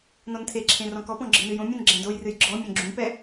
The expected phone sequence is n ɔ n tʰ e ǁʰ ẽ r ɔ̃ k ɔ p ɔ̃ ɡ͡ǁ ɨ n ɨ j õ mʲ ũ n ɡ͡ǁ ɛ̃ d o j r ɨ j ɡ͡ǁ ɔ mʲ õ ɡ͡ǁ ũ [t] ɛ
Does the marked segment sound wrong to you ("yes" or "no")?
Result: yes